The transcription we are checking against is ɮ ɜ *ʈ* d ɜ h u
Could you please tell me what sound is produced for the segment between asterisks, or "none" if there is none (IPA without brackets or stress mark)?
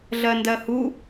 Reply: n